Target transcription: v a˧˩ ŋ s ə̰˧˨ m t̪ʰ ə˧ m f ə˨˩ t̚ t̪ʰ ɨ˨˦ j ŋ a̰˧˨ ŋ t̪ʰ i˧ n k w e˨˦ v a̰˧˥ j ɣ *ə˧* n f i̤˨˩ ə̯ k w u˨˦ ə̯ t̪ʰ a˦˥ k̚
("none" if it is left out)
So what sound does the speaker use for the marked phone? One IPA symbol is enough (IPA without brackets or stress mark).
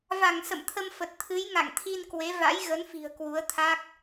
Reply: ə˨˦